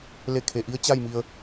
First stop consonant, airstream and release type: aspirated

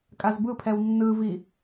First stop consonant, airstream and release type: ejective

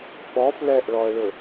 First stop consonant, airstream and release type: implosive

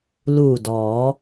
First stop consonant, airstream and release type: plain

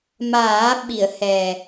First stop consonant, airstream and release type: implosive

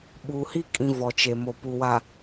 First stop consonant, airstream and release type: implosive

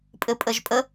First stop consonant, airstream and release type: ejective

